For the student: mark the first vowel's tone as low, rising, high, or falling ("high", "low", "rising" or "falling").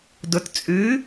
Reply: low